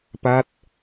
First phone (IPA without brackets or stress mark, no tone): p